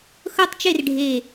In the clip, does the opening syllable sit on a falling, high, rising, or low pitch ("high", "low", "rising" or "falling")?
falling